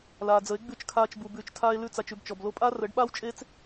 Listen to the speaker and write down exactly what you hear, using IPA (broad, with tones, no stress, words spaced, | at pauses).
laː˨d͡zə˨˦e̯ ɡ͡bʉ˦˨t͡ʃkʰaː˧t͡ʃbu˨ bʉː˨t͡ʃ tʰaː˦e̯lʉ˦t͡sa˧t͡ʃ ʉ˧bt͡ʃɔ˨blo˦ pʼaː˦rəː˨˦ɖɓaː˦w t͡ʃʼe˦t͡s